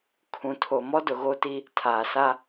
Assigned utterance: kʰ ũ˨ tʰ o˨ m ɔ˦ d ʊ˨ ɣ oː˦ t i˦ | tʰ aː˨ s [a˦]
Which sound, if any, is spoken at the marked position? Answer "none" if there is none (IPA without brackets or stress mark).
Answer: a˦